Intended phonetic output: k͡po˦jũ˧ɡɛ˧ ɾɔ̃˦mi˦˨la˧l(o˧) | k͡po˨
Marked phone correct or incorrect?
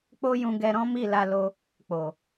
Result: correct